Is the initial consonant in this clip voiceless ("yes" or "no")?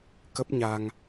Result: yes